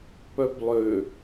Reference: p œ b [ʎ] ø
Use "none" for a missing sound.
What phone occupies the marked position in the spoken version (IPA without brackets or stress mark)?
lˠ